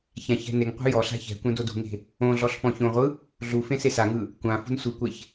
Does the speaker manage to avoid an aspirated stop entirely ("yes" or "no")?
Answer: yes